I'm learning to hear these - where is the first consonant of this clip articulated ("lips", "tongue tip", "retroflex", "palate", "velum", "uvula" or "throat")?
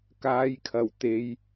velum